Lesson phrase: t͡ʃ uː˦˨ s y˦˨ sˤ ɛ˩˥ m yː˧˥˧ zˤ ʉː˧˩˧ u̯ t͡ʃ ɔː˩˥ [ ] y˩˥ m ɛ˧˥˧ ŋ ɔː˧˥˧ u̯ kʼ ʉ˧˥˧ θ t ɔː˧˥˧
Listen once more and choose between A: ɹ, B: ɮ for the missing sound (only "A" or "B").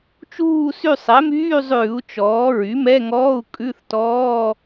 A